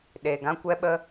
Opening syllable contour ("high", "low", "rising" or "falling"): low